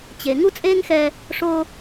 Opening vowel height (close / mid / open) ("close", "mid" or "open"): mid